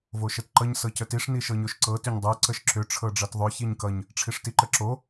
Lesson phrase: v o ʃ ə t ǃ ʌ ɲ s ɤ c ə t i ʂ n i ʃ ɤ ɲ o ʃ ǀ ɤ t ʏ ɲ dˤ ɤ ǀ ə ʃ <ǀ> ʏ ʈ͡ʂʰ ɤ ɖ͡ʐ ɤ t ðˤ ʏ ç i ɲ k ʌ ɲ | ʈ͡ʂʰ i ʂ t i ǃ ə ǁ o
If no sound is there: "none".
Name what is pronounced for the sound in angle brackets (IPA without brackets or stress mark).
ǁ